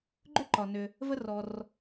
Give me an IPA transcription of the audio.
ɡ͡ǃʏ˥ǃɒ˩nʏ˩ | və˧rɔ˩r

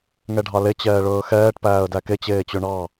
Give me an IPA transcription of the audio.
ŋɛɖʱɑle t͡ɕɛːɭɵːxɛːʈ pæːə̯dæke t͡ɕeːt͡ɕɵɳɑ

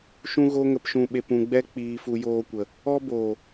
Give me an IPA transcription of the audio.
ʃũ˦ɣo˦ŋə˧pʃũ˧ ɓe˧pũ˧ɡ͡bɛ˦ k͡piː˧fu˧joː˧kʷə˨ | ɔ˦boː˨

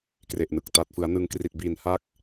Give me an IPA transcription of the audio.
kre˨˩ʔnɯ˨˩k̚ ta˨˩t̚ fɯ˩˦a̯nɯ˧ŋkri˨˩t̚biː˨˩n ha˥˩k̚

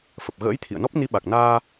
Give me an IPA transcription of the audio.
fə˨˩p̚ɣə̰ː˧˥jt̪ʰḭ˧˨ə̯nɔ˦˥p̚ ni˨˦ɓa˨˩k̚naː˧

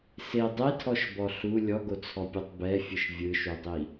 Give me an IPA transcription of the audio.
se dˤetʰɔʃbɔ ɬu lʲɔɡot͡sʰɔpʲotˤ bɛfʲɯʃ vʲɯʃudˤi

